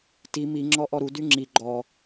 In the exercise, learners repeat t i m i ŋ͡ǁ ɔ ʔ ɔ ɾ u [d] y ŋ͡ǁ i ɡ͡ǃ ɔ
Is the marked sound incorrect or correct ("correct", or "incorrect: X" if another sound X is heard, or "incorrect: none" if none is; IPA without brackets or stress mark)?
correct